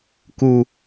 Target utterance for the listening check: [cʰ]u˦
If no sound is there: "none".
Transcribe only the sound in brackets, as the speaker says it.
k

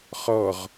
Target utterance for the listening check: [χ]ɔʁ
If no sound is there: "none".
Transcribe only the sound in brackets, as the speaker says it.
χ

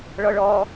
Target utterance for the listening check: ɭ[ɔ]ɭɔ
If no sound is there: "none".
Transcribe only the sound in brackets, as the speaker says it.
ɔ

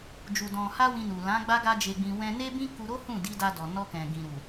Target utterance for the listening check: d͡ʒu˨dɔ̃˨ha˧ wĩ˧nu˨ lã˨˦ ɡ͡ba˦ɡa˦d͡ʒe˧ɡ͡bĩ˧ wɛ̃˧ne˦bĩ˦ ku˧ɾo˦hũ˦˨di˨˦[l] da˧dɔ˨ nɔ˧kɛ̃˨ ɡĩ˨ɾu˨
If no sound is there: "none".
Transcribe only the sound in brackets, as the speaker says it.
none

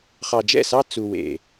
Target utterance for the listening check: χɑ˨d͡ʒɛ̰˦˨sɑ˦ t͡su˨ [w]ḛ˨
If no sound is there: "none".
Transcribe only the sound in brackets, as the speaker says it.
w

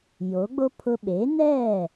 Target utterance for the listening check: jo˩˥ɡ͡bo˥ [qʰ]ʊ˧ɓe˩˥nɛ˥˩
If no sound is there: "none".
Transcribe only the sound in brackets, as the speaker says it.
pʰ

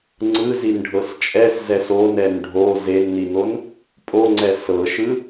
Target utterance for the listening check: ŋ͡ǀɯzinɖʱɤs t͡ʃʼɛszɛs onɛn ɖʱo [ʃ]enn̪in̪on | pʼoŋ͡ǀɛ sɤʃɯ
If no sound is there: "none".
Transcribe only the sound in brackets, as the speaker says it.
z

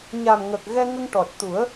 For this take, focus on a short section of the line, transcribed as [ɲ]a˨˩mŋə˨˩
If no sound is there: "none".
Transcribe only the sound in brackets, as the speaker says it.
ɲ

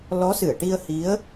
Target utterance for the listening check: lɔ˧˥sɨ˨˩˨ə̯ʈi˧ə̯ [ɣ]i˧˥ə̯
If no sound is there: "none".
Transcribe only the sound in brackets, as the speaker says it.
h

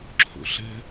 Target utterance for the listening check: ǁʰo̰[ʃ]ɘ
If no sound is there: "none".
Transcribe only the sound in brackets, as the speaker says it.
ɬ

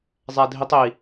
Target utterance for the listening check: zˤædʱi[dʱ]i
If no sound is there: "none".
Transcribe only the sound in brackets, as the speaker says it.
tˤ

